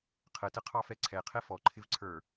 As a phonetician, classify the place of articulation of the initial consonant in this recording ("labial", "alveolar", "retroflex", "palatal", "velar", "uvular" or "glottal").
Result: uvular